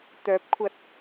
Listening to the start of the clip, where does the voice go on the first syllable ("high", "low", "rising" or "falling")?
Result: rising